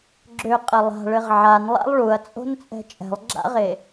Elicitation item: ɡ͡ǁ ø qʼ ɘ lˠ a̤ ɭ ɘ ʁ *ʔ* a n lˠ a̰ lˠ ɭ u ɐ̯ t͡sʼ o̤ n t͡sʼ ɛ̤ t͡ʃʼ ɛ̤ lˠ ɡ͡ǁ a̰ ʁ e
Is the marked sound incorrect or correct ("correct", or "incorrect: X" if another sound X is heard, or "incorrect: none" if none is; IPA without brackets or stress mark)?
incorrect: ʕ